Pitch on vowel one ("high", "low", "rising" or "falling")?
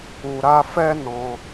low